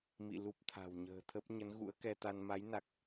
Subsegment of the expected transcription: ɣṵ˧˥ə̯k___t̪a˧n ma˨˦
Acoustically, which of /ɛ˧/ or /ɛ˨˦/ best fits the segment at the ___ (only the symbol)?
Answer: ɛ˧